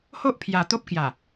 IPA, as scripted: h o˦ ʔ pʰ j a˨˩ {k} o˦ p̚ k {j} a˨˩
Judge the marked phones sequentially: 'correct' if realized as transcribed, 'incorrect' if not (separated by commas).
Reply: incorrect, correct